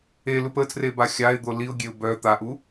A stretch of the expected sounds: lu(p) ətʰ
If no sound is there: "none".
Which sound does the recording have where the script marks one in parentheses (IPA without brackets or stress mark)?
p